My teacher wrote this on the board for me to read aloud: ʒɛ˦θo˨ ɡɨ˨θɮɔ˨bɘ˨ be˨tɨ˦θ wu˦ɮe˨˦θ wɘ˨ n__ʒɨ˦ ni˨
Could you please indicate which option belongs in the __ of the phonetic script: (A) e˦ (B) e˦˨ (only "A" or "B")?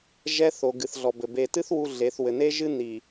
A